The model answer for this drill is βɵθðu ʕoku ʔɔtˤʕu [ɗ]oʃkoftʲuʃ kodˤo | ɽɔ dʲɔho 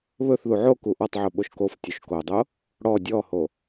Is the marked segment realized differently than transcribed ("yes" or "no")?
yes